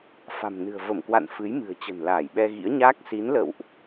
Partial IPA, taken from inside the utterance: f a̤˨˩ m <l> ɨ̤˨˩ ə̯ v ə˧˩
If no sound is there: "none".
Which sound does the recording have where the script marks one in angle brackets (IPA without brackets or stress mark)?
n